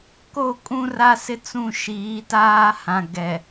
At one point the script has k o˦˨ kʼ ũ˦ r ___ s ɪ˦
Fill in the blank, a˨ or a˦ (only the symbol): a˦